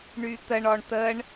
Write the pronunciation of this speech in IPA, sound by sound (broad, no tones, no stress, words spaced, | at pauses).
ɳyt̪əɳɔɳ t̪əɳ